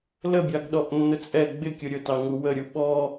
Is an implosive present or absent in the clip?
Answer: present